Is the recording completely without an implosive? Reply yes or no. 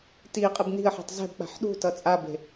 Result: no